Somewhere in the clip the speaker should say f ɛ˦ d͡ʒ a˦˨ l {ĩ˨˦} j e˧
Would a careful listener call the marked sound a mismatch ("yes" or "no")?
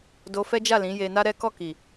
no